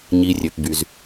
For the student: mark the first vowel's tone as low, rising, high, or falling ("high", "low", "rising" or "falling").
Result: low